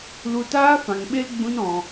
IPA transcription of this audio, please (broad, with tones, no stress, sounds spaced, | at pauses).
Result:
l u˧ t aː˦ f ã˨ ŋ ɓ e˧ l ɡ͡b ũ˦ n ɔ̃˧